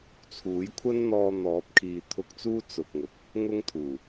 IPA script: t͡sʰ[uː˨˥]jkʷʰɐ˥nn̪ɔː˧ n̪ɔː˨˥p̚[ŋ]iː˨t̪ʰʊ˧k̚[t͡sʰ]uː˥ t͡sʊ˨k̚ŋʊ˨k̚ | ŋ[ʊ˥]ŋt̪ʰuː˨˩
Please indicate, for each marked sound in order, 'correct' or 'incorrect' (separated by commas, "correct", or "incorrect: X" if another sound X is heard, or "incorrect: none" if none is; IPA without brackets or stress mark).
correct, incorrect: kʰ, incorrect: t͡s, correct